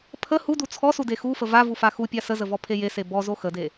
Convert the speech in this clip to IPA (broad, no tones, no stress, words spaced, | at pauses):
pʰə hudu t͡sʰɔsude xufə vavufa xupʲa səzəvɔpʰe jese bɔzo xəde